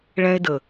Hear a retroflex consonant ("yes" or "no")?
yes